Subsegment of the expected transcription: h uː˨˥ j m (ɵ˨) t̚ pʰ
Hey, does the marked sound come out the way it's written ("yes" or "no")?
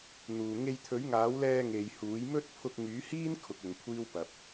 no